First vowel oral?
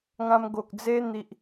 no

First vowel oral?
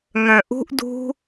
no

